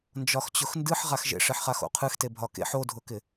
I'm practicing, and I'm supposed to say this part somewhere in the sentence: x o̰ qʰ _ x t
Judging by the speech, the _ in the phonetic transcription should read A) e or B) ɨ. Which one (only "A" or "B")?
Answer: B